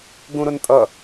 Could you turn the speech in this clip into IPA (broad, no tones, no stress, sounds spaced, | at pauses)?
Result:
ɡ ũ ɾ ʊ n tʼ ʌ